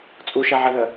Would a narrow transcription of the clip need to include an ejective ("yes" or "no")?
yes